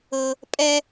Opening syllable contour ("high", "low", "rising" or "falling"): high